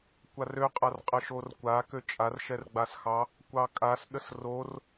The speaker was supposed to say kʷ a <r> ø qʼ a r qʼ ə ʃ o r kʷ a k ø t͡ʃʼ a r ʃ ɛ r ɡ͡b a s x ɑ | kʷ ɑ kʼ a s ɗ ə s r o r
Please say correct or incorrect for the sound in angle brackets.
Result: correct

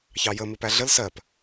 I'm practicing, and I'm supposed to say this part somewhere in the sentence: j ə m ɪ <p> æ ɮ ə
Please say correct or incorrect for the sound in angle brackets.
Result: correct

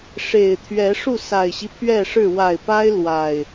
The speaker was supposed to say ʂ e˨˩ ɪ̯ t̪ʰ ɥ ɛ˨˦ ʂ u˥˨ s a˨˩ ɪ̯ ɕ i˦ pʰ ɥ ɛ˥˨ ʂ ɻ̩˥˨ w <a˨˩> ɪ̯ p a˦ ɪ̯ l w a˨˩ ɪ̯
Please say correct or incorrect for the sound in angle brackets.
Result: correct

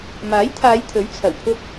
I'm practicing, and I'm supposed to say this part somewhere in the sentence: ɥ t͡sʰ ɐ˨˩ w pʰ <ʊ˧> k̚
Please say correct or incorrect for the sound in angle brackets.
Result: correct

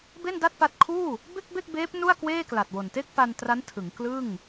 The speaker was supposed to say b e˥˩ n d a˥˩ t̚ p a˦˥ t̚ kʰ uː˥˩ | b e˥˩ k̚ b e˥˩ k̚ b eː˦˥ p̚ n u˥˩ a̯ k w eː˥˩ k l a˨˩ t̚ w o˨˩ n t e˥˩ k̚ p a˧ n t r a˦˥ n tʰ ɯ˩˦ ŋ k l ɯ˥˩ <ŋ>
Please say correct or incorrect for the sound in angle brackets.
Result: correct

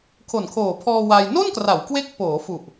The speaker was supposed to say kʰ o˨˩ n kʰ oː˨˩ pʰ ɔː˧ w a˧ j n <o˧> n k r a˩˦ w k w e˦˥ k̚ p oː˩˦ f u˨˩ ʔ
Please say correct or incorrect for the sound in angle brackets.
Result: incorrect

